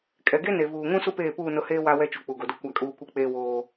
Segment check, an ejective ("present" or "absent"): present